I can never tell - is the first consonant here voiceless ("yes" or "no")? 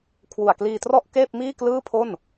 yes